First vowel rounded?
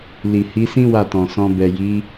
no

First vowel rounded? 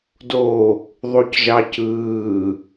yes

